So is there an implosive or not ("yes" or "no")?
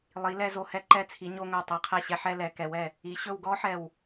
no